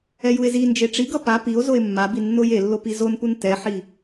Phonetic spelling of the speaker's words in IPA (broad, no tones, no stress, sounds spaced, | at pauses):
ɛ j u e̯ z i n d͡ʒ e ʈ͡ʂ i ɡ ʌ p a p i o̯ z o e̯ mː a b i nː o j e lː o p i z o n p u n t ɛ ħ i